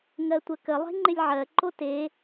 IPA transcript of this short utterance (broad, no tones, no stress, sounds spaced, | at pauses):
ŋ ɜ tʷ ə k ə lˠ e̤ ŋ͡ǃ ɪ lʲ ʕ ɜ ǃ o t e